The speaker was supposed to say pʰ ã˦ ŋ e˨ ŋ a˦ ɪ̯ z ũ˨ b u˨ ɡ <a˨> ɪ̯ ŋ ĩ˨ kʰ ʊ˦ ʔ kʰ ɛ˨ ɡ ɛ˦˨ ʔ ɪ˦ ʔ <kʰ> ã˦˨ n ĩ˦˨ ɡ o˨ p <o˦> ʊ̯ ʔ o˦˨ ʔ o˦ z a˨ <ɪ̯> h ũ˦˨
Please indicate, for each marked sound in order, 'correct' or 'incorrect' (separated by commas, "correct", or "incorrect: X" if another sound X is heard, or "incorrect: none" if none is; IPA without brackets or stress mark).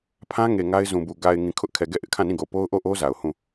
correct, correct, correct, incorrect: ʊ̯